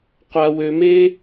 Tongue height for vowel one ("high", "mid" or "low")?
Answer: low